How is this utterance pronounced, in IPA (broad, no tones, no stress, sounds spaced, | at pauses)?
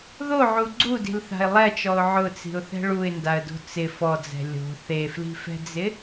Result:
ð o ʕ u ɡ͡ǀ u d i̤ l θ a̤ ɪ̯ lˠ ɛ t͡ʃ ɔ ʊ̯ ʕ ʊ t͡s i̤ ʊ̯ θ ɛ̤ ɭ u ɪ̯ n d a ə̯ d o̤ t͡s ɪ f ɔ d͡z ɛ̤ lʲ o̤ θ e f l i̤ f ɛ̤ d͡z ɪ